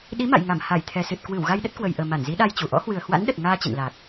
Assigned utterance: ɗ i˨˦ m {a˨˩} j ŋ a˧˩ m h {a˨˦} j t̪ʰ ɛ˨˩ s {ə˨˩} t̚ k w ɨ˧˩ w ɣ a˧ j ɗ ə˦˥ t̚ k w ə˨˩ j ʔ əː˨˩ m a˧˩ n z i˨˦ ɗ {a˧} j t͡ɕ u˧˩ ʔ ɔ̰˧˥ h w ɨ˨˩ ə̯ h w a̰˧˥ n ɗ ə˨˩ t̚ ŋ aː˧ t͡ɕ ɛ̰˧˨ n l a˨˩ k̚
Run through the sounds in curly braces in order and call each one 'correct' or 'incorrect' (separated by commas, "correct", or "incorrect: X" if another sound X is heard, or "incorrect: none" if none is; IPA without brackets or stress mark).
incorrect: a̰˧˨, incorrect: a˧˩, incorrect: ɨ˨˩, correct